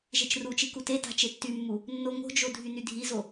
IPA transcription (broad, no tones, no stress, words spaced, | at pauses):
ʒet͡ʃrut͡ʃi kuteta̤ t͡ʃetːymːu | nːoŋo̤d͡ʒo dʱynydʱizo